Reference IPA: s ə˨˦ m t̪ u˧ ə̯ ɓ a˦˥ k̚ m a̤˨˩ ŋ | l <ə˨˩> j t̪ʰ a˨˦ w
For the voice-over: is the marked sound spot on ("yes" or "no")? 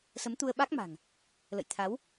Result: no